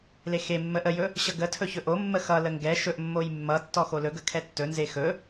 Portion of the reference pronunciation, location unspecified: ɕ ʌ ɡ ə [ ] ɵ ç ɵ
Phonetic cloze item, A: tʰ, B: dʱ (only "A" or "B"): A